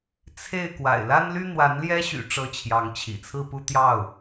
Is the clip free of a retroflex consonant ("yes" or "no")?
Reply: no